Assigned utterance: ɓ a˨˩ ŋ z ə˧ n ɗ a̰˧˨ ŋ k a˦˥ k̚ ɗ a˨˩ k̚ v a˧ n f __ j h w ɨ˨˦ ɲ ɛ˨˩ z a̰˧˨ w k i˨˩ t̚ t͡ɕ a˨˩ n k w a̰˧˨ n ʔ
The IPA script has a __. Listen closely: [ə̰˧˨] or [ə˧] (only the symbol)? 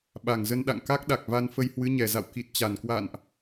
ə˧